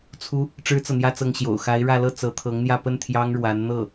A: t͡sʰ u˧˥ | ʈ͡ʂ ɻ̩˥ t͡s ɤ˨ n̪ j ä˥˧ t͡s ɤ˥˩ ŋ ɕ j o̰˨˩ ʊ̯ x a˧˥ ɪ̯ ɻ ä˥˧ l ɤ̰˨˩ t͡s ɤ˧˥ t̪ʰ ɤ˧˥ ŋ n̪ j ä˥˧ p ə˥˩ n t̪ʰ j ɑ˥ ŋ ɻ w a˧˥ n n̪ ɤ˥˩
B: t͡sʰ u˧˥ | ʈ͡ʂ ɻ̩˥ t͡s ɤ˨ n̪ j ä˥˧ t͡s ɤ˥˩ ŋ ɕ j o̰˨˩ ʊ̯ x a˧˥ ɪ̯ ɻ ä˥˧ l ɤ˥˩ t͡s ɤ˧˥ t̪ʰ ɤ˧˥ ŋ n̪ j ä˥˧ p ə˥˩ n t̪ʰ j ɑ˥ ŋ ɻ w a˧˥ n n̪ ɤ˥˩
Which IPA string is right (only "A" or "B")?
B